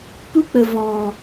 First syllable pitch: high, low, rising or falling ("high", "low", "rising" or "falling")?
high